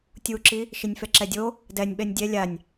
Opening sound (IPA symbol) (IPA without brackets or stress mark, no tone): tʲ